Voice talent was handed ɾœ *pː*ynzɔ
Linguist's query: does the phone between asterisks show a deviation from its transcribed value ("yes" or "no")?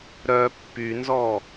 no